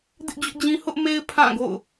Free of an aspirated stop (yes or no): no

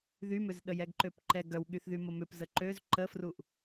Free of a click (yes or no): no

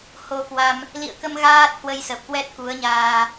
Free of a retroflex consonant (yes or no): yes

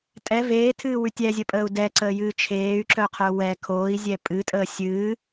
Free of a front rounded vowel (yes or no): no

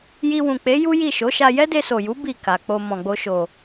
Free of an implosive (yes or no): yes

